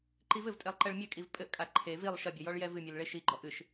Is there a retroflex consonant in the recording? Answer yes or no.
yes